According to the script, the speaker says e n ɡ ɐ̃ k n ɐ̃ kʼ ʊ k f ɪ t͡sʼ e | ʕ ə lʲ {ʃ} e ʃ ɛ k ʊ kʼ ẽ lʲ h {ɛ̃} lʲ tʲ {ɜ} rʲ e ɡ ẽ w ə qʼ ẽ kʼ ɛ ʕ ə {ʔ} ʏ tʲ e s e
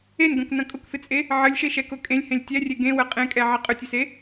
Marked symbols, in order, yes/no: yes, no, no, no

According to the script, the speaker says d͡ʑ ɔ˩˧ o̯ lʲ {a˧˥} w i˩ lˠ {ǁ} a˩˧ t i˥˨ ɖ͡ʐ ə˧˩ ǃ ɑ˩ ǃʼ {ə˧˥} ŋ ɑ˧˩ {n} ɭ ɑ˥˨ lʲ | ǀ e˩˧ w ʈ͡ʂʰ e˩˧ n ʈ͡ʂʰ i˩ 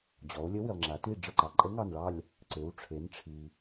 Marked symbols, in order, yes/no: no, no, yes, yes

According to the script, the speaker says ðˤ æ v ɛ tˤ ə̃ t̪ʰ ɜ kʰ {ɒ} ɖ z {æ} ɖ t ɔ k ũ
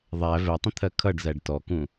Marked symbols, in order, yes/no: no, yes

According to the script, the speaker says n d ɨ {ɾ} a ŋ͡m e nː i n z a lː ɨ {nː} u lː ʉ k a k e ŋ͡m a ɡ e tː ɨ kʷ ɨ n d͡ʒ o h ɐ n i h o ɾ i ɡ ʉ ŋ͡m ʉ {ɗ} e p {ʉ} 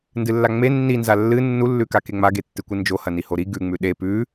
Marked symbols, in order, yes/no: no, yes, yes, yes

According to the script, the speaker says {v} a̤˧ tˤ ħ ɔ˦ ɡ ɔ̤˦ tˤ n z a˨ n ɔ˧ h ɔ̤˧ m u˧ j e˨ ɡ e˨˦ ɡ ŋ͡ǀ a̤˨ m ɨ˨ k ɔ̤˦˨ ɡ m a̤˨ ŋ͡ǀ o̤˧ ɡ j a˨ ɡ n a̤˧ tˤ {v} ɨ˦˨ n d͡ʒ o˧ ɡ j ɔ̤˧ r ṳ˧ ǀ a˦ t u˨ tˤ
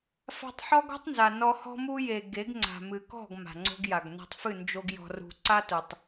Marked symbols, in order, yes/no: no, no

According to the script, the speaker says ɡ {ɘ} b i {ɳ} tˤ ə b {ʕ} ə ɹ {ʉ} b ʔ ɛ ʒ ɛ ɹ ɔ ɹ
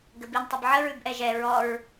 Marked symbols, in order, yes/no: yes, no, yes, yes

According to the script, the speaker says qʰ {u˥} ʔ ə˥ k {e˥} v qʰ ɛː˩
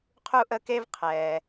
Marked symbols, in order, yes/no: yes, yes

